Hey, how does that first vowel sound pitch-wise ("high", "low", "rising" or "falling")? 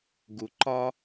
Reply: low